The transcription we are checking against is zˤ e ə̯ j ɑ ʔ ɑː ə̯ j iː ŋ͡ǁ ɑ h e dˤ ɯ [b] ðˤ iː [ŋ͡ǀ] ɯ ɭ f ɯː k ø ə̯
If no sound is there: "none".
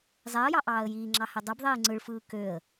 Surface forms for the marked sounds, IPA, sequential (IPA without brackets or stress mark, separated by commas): b, ŋ͡ǀ